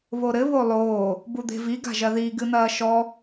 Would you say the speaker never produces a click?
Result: yes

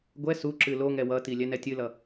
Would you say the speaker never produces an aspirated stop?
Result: yes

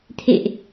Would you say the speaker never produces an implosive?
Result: yes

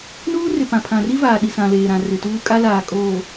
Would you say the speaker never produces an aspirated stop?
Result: no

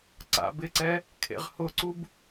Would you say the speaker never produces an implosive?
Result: yes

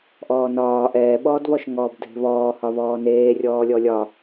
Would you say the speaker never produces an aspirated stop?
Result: yes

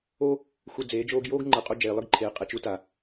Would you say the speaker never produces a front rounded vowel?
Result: yes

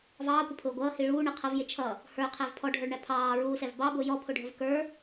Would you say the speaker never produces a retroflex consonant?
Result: no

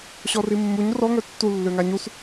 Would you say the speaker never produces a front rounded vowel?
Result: no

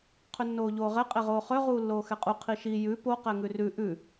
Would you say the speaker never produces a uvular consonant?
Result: no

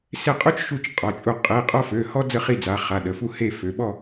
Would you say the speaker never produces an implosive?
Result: no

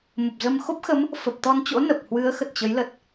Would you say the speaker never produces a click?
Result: yes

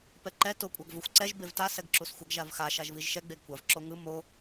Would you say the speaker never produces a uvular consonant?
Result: yes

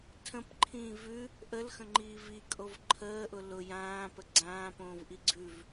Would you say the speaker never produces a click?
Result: no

